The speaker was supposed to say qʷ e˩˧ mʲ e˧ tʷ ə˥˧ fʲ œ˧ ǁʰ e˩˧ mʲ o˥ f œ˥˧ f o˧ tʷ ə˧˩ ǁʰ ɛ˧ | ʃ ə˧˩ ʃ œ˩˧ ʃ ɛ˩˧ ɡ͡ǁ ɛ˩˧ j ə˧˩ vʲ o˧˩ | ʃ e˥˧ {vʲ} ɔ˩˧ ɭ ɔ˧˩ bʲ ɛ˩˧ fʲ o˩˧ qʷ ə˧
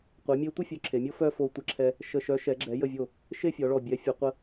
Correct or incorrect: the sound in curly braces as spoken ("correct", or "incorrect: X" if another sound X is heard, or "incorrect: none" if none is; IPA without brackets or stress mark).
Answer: incorrect: fʲ